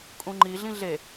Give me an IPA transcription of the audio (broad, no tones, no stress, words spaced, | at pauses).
kʼũŋ͡ǃi ɮĩɮe